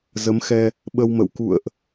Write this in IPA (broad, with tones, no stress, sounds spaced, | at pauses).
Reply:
z ə˨˦ m x ɛ˧ | ɓ ə˧ w m ə̰˧˨ w k ṵ˧˨ ə̯ ʔ